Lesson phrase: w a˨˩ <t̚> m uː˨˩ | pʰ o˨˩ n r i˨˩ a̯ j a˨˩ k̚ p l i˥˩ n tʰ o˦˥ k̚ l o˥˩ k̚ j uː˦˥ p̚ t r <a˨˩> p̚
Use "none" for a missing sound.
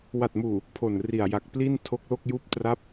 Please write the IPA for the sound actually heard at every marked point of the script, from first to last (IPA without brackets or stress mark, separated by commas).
t̚, a˦˥